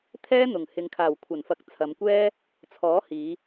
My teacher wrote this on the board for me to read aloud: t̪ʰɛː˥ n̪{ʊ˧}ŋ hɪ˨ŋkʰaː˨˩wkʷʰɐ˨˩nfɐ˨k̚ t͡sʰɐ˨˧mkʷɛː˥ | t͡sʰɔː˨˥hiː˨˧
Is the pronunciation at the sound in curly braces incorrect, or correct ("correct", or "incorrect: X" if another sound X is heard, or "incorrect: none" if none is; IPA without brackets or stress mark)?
incorrect: ʊ˨˩